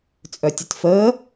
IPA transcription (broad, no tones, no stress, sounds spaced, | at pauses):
t͡sʼ œ tʲ ɘ t f əː